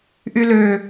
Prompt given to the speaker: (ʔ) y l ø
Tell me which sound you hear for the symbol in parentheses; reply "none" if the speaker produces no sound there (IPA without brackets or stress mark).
ʔ